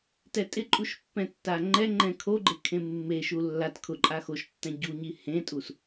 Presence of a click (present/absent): present